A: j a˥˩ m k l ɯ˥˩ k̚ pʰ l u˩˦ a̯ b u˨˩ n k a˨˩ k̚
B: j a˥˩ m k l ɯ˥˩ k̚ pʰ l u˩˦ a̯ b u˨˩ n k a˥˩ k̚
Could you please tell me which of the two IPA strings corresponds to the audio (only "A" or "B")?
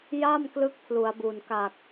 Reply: A